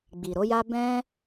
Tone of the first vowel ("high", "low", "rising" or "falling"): low